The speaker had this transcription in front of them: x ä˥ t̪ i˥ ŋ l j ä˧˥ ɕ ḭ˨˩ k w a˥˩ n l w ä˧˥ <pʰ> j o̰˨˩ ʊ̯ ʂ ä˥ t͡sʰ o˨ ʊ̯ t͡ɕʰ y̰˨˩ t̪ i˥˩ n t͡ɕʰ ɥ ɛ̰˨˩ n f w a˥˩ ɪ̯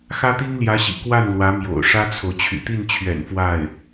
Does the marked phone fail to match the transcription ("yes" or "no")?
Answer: yes